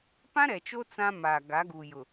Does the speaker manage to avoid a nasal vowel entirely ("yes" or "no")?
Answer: no